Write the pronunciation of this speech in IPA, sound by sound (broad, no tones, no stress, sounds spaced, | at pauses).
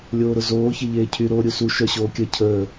lʲ oː ɾ ʊ z oː ç e ʎ eː cʰ y ɾ oː ɾʲ u s u ʃ œ ɕ oː kʲ ə cʰ əː